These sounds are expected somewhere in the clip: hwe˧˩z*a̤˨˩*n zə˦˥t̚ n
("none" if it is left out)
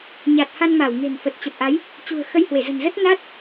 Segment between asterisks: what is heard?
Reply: ə̤˨˩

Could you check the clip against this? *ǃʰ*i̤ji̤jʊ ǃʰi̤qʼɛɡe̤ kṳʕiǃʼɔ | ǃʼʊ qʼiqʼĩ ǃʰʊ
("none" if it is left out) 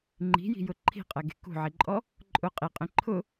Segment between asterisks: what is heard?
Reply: ŋ͡ǃ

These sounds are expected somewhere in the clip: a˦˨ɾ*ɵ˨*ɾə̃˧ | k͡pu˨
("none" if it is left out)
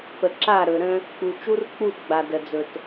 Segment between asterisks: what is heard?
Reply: ɵ˨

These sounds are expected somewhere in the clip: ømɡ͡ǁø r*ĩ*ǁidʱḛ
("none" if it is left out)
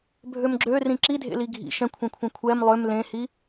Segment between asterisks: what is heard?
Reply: ĩ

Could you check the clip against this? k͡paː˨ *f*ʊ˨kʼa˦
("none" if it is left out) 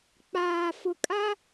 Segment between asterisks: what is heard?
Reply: f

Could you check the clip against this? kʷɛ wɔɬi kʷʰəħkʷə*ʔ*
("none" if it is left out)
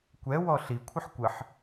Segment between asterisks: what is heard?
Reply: ħ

